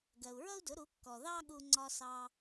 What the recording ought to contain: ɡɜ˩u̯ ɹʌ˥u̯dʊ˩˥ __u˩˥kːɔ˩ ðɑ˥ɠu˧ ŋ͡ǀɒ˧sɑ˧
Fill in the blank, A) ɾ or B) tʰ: A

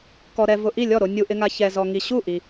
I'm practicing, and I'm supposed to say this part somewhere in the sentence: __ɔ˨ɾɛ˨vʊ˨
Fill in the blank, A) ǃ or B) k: B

